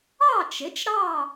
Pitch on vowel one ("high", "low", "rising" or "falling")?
falling